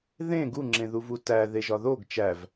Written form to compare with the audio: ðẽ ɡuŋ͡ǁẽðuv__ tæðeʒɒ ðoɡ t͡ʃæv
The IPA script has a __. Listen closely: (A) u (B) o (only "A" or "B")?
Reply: A